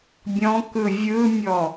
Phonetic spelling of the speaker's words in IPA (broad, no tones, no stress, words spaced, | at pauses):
bʲɔ̃kɯ vʲɯmʲɔ